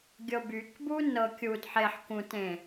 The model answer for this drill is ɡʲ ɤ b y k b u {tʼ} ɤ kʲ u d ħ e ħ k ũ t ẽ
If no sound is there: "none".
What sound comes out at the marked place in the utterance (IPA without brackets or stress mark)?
n